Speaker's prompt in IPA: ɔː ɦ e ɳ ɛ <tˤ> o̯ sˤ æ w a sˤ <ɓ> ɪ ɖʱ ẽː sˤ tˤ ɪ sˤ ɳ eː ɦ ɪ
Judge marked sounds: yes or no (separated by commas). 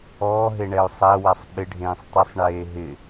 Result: no, yes